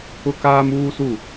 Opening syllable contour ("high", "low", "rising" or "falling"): high